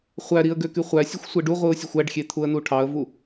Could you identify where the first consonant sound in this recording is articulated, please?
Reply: uvular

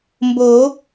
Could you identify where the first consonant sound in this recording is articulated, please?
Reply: labial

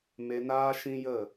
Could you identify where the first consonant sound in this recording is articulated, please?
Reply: labial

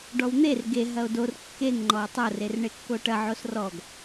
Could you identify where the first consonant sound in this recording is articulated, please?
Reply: retroflex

